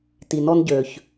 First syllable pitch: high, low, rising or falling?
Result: low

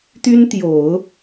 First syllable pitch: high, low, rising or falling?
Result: high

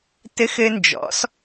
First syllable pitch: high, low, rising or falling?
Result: high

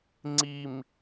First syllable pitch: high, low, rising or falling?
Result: low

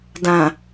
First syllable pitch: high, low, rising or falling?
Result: low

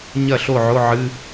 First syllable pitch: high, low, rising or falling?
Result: falling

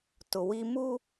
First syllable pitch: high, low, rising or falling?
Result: low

